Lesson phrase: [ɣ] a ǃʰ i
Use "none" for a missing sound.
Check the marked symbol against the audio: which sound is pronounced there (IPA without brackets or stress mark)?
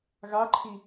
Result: ɣ